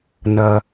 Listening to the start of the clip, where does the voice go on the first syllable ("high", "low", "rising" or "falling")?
low